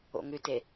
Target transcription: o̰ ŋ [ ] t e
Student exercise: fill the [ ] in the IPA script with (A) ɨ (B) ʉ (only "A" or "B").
B